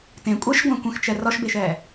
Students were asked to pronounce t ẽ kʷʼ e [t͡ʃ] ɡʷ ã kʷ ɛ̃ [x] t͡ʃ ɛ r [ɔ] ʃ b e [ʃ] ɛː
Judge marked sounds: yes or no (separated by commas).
no, yes, yes, yes